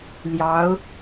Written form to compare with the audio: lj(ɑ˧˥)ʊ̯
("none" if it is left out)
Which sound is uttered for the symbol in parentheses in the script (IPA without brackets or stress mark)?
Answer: ɑ˧˥